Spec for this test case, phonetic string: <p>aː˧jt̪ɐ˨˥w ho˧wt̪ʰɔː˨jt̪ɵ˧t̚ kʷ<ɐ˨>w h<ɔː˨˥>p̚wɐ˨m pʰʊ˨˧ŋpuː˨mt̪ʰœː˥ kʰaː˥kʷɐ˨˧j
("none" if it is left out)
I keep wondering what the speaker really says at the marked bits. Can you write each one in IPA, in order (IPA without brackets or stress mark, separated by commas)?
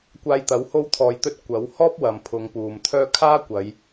kʷ, ɐ˨˥, ɔː˥